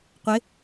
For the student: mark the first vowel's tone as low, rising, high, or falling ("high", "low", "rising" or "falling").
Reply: rising